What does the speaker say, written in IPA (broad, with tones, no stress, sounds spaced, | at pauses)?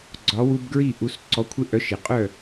ɡ͡ǀ ɒ˩˥ w u˧ b ɡ ɹ i˥˩ ʔ u˩˥ s ǀ ɔ˩˥ kʷʰ ɪ˧ ʔ œ˩˥ ʃ ɪ˩ qʼ œ˥˩